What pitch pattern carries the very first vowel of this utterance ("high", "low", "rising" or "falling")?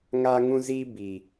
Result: high